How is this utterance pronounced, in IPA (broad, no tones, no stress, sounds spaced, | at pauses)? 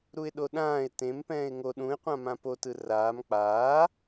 ɾ u ɪ̯ ɗ o ɗ ãː ɪ̯ t ẽ m p ɛ̃ː ɪ̯ ŋ o ɗ ũ ɪ̯ qʷ ã m ã p o t ɯ r aː m k͡p aː